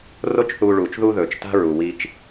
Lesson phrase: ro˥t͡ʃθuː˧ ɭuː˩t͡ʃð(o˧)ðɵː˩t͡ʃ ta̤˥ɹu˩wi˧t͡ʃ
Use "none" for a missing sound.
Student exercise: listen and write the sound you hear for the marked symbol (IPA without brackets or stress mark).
u˧